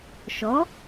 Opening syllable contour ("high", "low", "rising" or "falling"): rising